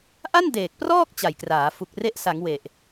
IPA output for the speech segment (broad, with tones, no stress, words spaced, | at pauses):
ʔa˥˩n deː˨˩k̚prɔː˥˩k̚ t͡ɕa˨˩jkraː˩˦ fu˨˩k̚re˦˥ʔ sa˩˦ŋ we˨˩ʔ